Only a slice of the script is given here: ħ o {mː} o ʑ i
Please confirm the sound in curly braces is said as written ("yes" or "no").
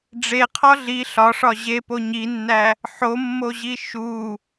yes